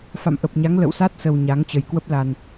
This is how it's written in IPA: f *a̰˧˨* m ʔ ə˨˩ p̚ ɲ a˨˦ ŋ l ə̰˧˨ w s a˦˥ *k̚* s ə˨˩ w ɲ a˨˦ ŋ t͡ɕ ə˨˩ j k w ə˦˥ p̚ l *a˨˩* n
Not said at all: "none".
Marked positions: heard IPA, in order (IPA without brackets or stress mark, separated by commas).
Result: a̰˧˨, t̚, a˨˩